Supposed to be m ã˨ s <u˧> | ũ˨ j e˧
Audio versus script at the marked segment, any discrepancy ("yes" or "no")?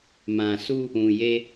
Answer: no